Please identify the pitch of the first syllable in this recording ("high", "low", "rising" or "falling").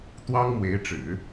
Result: high